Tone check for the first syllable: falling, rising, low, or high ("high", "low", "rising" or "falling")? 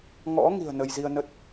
rising